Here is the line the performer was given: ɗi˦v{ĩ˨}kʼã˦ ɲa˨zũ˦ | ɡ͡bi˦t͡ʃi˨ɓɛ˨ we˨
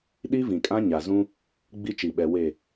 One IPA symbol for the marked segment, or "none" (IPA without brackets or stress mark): ĩ˨